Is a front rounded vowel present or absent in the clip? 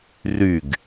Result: present